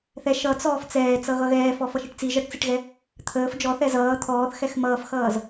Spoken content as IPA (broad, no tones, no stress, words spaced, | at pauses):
θɛ ʃʌt͡sɔːf t͡sɛːt͡sʌ ɣʌɣɛːfɔ fʌʃiʈt͡si ʒʌʈt͡siʈɣɛ | t̪ʰəːf d͡ʒɔθɛ zʌː t̪ʰɔːθxɛx mʌːfxʌːz